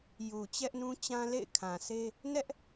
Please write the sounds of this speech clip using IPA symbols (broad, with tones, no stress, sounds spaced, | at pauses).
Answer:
j u˨ t͡ɕ ɛ˦ ʔ n ũ˦ t͡ɕ ã˦ l ḛ˦˨ ɪ̯ kʰ ã˨ sʰ e˦ | n ɛ˦ ʔ